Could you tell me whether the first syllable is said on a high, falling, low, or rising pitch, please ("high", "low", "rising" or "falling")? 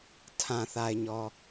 low